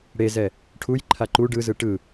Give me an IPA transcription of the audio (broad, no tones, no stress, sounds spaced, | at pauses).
ɽ e z ɛ | ʈʰ u j ǃʰ a ǃ u ɖ ɯ z ɯ ʈ ɯ